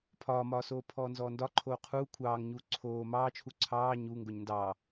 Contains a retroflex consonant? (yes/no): no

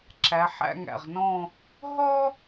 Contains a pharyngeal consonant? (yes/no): yes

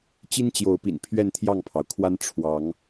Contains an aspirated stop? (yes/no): yes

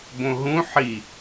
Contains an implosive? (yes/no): no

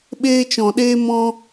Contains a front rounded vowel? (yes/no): no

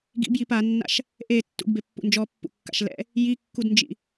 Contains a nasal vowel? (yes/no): no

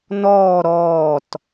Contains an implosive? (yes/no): no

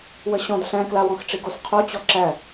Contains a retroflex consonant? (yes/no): yes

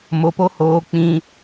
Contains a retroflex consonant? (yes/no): no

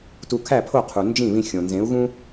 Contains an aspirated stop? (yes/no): yes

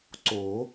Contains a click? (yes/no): yes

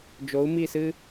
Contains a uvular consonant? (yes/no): no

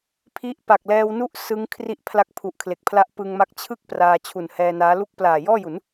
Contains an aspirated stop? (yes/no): yes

